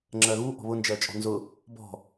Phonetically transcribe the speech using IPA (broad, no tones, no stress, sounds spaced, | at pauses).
ŋ͡ǁ ɜ ɣ u ʔ ɔ̤ β ʊ n d͡ʒ ɜ t͡ʃʼ ɔ̤ n z ʊ | b ɔ̤